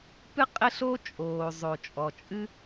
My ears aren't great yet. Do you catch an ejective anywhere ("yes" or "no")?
yes